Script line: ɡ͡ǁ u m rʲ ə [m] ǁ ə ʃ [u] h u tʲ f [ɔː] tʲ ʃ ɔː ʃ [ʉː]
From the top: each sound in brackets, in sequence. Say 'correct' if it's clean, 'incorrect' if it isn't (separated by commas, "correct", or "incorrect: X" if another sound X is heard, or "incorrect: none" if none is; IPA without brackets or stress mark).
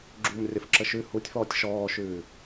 incorrect: f, incorrect: ʉ, correct, correct